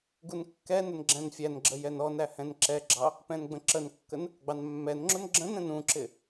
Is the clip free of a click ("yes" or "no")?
no